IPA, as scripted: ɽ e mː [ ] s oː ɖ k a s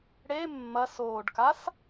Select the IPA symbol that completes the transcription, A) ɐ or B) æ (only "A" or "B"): A